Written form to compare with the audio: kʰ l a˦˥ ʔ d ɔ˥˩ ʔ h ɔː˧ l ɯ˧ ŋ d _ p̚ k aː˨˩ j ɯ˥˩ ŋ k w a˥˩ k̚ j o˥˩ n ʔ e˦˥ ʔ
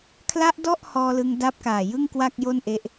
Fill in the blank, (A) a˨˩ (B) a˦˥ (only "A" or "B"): B